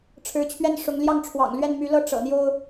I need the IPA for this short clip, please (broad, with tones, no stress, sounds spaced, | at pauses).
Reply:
ʈ͡ʂʰ ɻ̩˧˥ t͡ɕʰ ɥ ɛ˥˩ n ʂ ʊ˧˥ ŋ l j ɑ˥˩ ŋ ʈ͡ʂʰ w ɑ̰˨˩ ŋ l ɥ ɛ˥˩ n m y˧˥ l ɤ˥˩ ʈ͡ʂ ɤ̰˨˩ n̪ j o˥ ʊ̯